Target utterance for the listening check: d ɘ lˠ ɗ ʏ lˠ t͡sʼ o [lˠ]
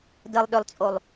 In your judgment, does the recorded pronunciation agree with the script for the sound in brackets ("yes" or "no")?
yes